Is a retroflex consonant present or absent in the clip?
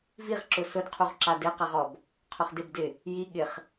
absent